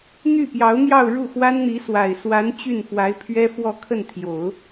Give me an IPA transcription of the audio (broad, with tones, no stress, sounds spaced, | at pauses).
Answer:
n̪ y˥˩ p j ɑ˧˥ ʊ̯ n̪ j ɑ˥˧ ʊ̯ ɻ u˥˩ x w a˥ n n̪ i˧˥ s w a˨˩ ɪ̯ s w a˧˥ n t͡ɕ y˥˩ n f w a˧˥ ɪ̯ pʰ ɥ ɛ˥ f w ɔ˥˧ kʰ ə˥˩ n t̪ʰ j o˨˩˦ ʊ̯